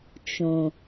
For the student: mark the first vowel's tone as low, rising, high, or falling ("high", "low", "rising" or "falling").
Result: low